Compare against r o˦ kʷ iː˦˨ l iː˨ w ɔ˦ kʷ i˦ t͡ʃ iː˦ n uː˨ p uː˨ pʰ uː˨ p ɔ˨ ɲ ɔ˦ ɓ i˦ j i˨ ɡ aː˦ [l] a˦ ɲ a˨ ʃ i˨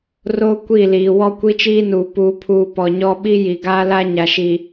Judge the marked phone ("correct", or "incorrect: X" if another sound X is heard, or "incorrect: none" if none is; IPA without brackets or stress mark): correct